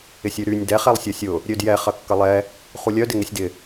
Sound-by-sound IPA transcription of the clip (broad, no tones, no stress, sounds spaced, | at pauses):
ɪ sʲ y ɾ y nʲ d ɛ χ ɛ lˠ sʲ ɐ sʲ ʊ | ɾʲ ø d j ɛ χ ɐ kː ɐ lˠ ɛ | χ u lʲ œ d ɪ ŋ ɪ sʲ d ɪ